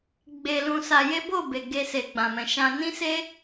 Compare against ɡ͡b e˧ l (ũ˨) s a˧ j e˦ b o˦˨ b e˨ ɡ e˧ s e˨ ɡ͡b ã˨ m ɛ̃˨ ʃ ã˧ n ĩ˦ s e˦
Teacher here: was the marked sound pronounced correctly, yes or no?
no